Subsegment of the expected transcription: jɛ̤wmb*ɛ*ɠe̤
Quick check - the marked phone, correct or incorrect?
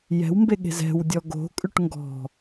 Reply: incorrect